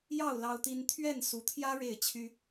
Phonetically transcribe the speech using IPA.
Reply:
jɑ˥˨ʊ̯ lɑ˦ʊ̯t̪i˦n t̪ʰɥɛ˥˨n su˨˦t̪ʰjä˦ ɻe˥˨ɪ̯t͡ɕʰy˦

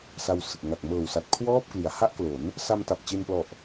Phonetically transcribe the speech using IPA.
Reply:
sa˧wsɯ˨˩k̚ ŋa˨˩k̚mɤː˨˩wsa˨˩t̚ kʰwɔː˥˩p̚ kli˩˦a̯ ha˥˩ʔklo˩˦n | sa˧mta˨˩p̚ t͡ɕe˧nplɔ˨˩ʔ

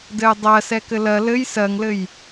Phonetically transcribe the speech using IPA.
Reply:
dɘjdˤɜ sɛkɘlɜ lɘj sɜŋlɘj

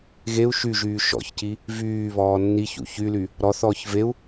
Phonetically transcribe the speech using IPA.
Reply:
ɣeu̯ ʃyʒyː ʃɔ̰çci | vyːβɔː nːiçṵ çyly | ɾɔθɔːç veu̯

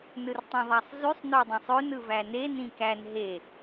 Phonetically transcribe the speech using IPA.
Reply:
nɯrtˤũðˤæsˤzysˤ nodˤĩsˤøn ɯvæne nĩkæn ɦe

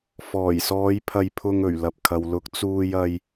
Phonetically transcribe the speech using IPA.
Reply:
fɔː˨˩jsɔː˨˧j pʰɐ˧jpʰʊ˧ŋ ɵ˨˩ɥ lɐ˨p̚kʰɐ˨wlʊ˨˥k̚ t͡suː˧jɐ˧j

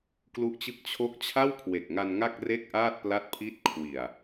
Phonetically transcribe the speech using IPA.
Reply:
klu˦˥ʔt͡ɕɯ˥˩k̚ t͡ɕʰo˦˥k̚ t͡ɕʰa˥˩wkʰwe˨˩k̚ŋa˧n ŋa˥˩k̚re˥˩k̚ʔaː˥˩t̚ pla˥˩t̚pʰi˥˩t̚ kʰwi˨˩a̯

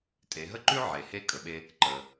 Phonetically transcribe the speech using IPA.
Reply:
tʼe˩˧ɦə˥ǃʉ˥ ʕe˩he˧ kʼə˩ɓe˧ | ǃə˩

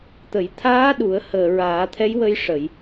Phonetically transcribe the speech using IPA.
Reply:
t̪ə˨˩˨jt̪ʰaː˧˥ɗu˨˩˨ə̯ həː˨˩ ɹaː˨˩˦t̪ʰɛ˧˥jwə˧jʂə˨˩˨j

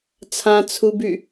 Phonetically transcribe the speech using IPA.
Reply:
t͡sʰãt͡sʰuby

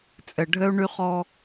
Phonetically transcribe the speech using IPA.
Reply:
t͡sʼɘ˨ ɖʱɘ˦u̯ɳy˦χɔ˦

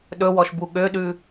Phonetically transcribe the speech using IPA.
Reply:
ɗɵwɔʃ buɠøɗʉ

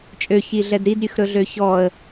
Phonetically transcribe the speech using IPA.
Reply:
t͡ʃʼøçiɮɛd ɾidɾʲʉxɾɵɮø çɔə̯

